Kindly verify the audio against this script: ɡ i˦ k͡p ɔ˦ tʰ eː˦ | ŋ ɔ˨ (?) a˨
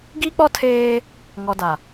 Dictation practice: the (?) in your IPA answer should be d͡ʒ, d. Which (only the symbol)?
d